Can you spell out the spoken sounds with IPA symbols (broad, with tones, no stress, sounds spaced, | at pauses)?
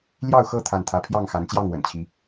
l j ɑ˥˨ ʊ̯ x ɤ˥˨ t̪ʰ a˥˨ n t̪ʰ ä˦ pʰ j ɑ˥˨ ŋ x a˨˦ n t͡ɕ j ɑ˥˨ ŋ w ə̰˨˩ n t͡ɕʰ i˨˦